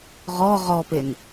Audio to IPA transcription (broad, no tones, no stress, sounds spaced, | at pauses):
ʁ ɔ ʁ ɔ p e n